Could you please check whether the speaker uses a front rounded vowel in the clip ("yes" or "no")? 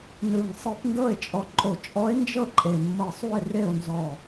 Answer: no